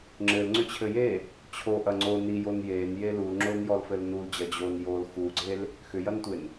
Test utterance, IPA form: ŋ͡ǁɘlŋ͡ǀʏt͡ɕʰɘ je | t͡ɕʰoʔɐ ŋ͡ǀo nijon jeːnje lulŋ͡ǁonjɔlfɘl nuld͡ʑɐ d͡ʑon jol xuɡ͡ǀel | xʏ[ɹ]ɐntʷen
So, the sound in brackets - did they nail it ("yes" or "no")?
no